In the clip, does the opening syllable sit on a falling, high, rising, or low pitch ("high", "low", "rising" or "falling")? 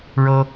high